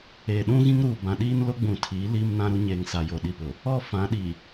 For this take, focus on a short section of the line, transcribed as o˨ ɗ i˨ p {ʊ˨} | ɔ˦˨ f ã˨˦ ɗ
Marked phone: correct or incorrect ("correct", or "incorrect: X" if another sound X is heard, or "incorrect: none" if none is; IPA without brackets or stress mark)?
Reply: correct